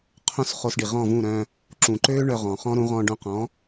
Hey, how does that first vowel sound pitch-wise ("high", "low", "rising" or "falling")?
high